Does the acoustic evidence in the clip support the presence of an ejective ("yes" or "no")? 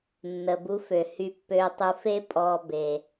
yes